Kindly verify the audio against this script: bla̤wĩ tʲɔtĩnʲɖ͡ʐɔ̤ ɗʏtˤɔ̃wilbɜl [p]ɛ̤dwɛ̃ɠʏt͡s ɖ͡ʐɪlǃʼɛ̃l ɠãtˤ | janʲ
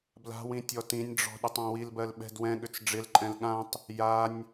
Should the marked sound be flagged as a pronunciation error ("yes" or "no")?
yes